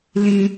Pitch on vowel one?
low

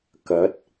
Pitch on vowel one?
rising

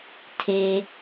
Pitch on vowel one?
low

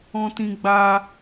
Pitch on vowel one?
high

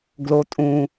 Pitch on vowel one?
low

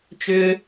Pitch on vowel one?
high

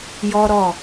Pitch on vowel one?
high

